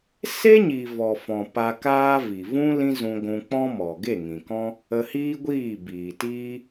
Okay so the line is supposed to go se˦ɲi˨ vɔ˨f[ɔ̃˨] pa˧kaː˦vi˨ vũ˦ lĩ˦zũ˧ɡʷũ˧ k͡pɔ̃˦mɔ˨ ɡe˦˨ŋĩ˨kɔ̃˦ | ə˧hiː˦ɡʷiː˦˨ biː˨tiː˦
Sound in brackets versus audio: correct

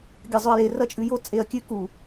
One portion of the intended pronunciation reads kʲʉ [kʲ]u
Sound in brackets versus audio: incorrect: k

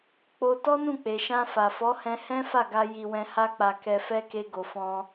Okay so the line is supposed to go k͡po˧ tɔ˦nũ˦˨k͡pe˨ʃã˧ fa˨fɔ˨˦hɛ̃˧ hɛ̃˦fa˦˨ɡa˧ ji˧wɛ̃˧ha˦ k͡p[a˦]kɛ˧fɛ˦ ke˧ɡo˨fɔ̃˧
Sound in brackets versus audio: incorrect: a˧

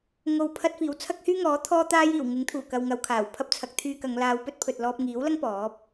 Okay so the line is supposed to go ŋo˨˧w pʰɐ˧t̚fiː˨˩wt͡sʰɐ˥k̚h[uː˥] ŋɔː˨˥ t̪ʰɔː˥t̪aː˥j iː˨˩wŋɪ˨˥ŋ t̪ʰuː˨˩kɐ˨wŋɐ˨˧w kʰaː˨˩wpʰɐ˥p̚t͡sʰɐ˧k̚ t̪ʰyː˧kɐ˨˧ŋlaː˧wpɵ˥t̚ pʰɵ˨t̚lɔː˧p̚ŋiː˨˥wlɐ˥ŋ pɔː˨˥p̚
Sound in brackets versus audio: incorrect: yː˥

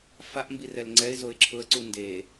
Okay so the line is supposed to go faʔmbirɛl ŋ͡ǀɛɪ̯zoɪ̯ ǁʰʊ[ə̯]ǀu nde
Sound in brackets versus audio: correct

